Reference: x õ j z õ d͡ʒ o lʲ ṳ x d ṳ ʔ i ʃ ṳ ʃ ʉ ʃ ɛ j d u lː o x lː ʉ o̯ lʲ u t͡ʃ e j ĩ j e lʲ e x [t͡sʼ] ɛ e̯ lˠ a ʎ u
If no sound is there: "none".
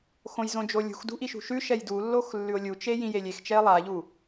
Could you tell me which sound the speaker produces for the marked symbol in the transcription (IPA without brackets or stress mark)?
t͡ʃ